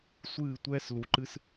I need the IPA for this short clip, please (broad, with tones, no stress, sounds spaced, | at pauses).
sʷ ɨː˦˨ tʷ ɛː˦ s l u˨ ǃ ɨ˦ s